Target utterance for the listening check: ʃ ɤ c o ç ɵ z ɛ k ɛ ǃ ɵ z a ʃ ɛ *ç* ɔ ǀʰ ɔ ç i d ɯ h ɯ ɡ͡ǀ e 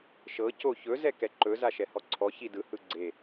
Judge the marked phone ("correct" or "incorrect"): incorrect